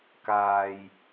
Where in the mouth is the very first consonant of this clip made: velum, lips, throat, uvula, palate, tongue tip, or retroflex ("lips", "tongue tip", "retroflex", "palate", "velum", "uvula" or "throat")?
velum